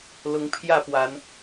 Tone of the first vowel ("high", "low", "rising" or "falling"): rising